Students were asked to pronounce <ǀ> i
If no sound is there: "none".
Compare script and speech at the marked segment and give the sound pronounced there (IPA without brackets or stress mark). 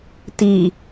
t